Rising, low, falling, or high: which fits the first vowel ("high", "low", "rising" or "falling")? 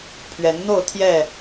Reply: rising